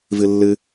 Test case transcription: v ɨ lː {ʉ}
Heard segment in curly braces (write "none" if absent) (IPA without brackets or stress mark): ɨ